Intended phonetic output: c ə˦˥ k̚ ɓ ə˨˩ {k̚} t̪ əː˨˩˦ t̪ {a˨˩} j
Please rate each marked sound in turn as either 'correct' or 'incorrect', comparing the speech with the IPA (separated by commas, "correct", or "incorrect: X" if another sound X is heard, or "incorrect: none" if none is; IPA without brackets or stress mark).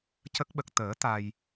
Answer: correct, incorrect: a˧